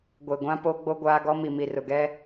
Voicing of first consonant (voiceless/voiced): voiced